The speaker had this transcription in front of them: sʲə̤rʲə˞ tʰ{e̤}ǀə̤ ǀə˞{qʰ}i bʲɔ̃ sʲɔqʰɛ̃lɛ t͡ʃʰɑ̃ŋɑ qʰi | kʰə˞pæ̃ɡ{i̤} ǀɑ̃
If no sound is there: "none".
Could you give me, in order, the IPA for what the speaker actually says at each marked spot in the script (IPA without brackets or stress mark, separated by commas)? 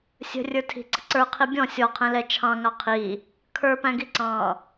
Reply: i̤, qʰ, i